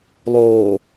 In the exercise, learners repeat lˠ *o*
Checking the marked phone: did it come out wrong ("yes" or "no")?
yes